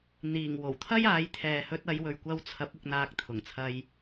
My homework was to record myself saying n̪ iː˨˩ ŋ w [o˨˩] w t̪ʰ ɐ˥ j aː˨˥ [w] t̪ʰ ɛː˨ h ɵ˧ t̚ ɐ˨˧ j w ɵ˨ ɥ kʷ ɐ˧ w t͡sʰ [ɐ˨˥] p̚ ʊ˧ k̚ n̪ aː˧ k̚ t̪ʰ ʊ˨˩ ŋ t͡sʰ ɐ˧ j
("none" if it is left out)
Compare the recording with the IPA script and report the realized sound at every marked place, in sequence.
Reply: o˨˩, j, ɐ˨˥

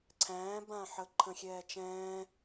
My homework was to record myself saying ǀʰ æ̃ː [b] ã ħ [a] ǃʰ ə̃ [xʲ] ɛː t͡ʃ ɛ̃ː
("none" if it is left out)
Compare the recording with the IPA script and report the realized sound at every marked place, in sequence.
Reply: b, ə, xʲ

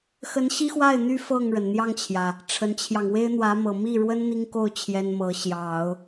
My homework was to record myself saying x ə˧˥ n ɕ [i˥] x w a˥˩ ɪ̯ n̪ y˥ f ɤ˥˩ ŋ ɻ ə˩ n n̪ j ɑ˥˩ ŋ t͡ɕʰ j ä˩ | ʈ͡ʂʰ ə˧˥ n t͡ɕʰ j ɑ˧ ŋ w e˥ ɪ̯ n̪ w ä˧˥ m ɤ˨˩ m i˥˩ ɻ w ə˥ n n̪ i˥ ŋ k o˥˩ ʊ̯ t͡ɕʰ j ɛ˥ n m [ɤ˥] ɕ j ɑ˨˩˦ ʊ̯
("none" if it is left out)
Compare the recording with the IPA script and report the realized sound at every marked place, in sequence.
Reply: i˥, ɤ˧˥

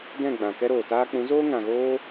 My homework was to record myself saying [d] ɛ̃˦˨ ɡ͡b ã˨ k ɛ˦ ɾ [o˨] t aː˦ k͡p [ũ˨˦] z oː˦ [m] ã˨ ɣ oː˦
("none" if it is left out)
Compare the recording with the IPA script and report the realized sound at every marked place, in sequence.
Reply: d, oː˨, ũ˨˦, ŋ

